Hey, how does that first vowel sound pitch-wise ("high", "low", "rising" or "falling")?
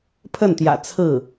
falling